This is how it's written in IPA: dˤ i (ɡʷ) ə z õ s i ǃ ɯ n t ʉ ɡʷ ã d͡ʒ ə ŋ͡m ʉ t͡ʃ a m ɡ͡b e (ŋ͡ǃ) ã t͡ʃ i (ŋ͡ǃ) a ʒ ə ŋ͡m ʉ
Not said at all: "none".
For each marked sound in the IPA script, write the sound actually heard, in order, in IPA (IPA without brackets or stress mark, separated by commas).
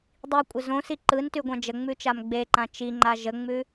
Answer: kʷʼ, ǃ, ŋ͡ǃ